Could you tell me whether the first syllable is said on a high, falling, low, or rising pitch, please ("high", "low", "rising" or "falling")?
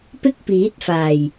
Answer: high